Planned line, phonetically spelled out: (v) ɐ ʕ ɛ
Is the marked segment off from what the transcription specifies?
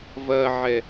no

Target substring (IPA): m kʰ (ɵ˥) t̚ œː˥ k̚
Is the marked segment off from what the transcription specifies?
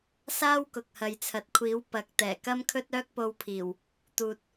no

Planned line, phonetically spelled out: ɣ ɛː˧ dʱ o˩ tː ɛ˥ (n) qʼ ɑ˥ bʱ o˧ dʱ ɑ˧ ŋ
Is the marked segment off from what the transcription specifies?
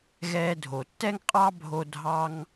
yes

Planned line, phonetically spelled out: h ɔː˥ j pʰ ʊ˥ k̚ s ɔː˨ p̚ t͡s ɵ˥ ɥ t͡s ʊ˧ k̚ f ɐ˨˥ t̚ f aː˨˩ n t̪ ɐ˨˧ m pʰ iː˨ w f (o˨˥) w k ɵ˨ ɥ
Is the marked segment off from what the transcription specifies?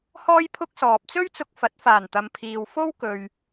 yes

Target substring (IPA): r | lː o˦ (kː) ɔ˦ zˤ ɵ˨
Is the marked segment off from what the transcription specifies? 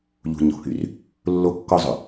no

